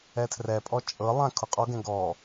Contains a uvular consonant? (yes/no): yes